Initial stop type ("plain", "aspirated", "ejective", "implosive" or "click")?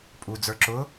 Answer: ejective